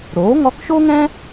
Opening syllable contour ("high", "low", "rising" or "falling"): rising